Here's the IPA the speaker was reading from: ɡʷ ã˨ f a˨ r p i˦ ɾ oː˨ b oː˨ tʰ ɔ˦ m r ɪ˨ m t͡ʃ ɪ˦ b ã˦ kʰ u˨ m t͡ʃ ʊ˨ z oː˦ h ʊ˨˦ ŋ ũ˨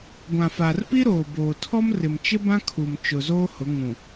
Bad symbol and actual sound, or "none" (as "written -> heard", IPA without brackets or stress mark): none